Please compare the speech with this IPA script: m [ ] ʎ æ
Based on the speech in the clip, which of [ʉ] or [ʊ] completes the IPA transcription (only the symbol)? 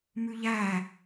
ʉ